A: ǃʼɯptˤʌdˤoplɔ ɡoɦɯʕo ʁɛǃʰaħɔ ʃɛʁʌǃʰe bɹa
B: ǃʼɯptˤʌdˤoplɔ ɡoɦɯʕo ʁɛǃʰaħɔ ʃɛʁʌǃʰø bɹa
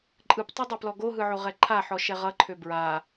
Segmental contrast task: B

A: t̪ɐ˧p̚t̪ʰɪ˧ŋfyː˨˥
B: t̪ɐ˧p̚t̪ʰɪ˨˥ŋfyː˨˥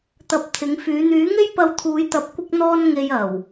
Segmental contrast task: B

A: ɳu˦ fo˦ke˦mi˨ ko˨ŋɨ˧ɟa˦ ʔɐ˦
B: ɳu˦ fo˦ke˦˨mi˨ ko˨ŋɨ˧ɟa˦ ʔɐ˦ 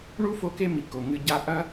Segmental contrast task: A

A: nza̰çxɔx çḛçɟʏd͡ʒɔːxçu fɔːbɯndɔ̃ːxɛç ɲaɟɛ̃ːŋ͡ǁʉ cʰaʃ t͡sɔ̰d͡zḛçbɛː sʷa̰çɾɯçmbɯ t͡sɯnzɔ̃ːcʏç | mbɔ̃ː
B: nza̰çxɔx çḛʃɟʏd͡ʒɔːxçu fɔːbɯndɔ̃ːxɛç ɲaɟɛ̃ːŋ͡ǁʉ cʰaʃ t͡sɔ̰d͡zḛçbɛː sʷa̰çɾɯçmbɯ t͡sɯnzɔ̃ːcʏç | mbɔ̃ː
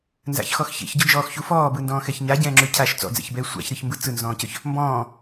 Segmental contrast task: A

